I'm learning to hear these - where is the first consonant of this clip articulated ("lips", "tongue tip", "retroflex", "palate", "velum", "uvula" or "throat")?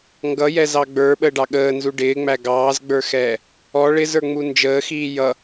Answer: velum